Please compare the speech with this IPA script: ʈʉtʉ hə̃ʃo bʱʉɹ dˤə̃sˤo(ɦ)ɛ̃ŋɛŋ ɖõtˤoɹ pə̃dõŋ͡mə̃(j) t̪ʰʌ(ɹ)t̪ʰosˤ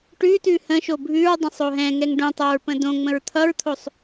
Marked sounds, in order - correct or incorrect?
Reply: correct, incorrect: ɹ, correct

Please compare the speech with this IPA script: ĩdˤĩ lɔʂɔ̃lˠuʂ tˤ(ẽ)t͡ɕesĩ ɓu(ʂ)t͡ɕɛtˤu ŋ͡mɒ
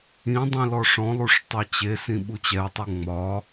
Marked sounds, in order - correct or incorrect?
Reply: incorrect: e, incorrect: none

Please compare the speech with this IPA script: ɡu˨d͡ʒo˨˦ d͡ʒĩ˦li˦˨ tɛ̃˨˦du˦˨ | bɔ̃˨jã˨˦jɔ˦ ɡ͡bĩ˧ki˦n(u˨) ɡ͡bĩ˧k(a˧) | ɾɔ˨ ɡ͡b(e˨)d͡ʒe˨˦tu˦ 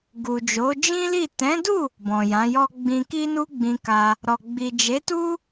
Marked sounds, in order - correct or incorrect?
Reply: incorrect: u˦, correct, incorrect: i˨

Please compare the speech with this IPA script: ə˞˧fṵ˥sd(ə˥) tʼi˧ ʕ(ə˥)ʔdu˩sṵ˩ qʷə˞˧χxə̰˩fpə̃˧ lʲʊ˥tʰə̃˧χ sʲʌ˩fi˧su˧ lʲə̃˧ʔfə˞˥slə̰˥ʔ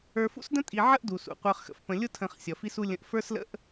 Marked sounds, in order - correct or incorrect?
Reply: incorrect: ə̃˥, correct

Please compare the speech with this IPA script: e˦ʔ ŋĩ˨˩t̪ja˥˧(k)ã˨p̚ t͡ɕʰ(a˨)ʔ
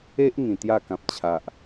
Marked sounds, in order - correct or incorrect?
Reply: correct, correct

